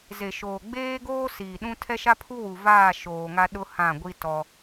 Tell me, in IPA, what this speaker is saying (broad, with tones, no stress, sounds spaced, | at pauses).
z e˨ ʃ oː˨ ɡ͡b eː˦ ɡ oː˦ s iː˨ ɗ ũ˦ tʰ ɛ˦ ʃ a˦ pʰ u˦ w u˨ v aː˦˨ ʃ oː˨ ŋ a˦ ɗ ʊ˦ h ã˦˨ ɡʷ i˦ t ɔ˦